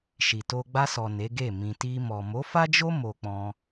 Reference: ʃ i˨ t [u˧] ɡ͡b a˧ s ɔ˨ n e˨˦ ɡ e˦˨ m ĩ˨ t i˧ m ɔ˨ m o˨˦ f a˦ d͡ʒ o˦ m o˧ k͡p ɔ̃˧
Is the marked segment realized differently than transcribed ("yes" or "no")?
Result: yes